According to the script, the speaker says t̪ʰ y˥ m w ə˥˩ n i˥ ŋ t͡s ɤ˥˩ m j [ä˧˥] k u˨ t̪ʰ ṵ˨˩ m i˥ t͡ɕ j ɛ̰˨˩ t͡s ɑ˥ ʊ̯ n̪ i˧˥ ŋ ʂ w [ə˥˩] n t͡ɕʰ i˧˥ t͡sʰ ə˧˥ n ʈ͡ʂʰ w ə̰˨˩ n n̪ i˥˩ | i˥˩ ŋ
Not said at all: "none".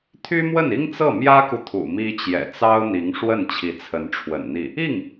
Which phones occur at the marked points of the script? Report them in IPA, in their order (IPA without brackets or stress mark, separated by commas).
ä˥, ə˥˩